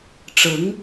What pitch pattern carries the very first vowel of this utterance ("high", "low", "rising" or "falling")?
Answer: rising